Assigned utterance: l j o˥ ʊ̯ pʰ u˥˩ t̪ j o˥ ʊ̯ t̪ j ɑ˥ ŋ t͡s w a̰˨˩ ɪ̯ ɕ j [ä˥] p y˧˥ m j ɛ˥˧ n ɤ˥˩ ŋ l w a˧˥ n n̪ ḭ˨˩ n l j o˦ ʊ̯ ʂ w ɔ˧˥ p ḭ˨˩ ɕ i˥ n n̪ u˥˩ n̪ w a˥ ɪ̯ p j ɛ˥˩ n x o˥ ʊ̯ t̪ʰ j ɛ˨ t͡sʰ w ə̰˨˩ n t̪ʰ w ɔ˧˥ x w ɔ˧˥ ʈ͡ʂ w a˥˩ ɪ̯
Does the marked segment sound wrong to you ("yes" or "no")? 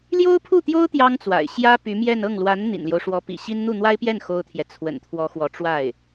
no